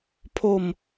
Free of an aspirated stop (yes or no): no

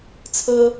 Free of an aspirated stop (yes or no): no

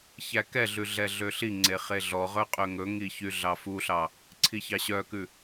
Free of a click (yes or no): no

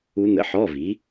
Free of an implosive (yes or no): yes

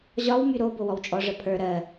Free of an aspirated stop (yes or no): no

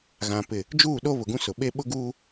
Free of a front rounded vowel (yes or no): yes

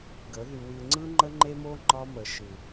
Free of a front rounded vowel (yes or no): no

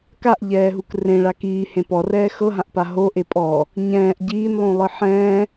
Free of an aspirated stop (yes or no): yes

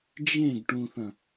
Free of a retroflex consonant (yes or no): no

